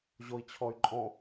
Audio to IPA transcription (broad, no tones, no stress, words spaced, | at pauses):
ʑoi̯t͡ɕʰɔy̯ǃʼɔ̃